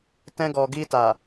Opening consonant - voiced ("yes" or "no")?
no